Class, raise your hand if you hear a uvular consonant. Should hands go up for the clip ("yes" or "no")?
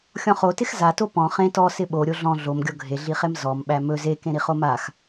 yes